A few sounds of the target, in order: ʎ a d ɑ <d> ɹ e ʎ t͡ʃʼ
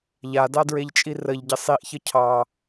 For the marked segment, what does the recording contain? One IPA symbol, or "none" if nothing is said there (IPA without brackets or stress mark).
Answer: d